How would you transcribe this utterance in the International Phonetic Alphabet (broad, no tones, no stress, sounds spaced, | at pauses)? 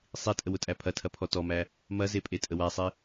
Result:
sˤ i tʼ ə w ʊ tʼ æ pʰ ɐ tʰ ɐ pʰ ɔ t ɔ m æ | m ɐ z e pʼ e tʼ ə w æ sˤ i